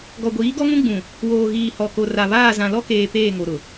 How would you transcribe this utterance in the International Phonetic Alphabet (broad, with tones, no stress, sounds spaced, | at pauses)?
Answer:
ɡ ɔ˨ ɡʷ iː˨˦ ɡ ɔ˦ ŋ ũ˦ ɡ͡b ũ˨ | w oː˨ ɣ iː˨ h ɔ˨ k o˨ r a˨ β aː˦˨ z ã˨ l ɔ˦ k eː˨ p eː˦˨ ŋ o˨ ɾ ʊ˨